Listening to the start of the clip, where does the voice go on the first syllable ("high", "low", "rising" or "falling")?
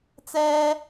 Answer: high